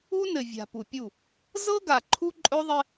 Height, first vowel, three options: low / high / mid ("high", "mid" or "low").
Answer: high